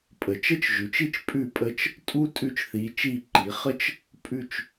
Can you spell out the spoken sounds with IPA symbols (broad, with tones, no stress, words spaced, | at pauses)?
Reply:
pʼə˩˧t͡ʃə˥t͡ʃʒʉ˩˧t͡ʃi˥t͡ʃ pʼʉ˧˩pʼə˧˩t͡ʃ | tʼu˥ tʼʉ˧t͡ʃθi˩˧ t͡ʃi˧˩ǃi˩˧ χə˥t͡ʃ | pʼʉ˧˩t͡ʃ